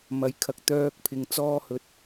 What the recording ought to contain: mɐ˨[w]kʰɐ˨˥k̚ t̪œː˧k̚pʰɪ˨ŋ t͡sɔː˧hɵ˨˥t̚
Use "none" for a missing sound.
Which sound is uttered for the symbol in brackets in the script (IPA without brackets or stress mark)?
j